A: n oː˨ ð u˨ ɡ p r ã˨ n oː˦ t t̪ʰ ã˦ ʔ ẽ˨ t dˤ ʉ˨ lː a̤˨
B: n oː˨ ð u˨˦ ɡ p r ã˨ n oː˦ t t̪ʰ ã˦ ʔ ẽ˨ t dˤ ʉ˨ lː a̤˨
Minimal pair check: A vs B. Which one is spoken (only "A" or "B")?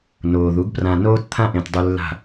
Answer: B